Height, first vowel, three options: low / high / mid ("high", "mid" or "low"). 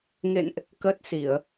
mid